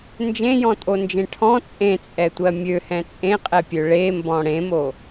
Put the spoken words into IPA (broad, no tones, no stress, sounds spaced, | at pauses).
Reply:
n d͡ʒ ẽ j ɔ̃ tʼ o n d͡ʒ ẽ ʈʰ ɔ̃ t͡sʼ ẽ t͡sʼ ɛ tʷ ɜ mʲ ø h ɛ̃ t͡sʼ ẽ qʼ ɛ pʲ ø ɭ e m b ɔ̃ ɽ ẽ m o